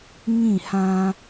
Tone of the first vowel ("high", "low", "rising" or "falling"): falling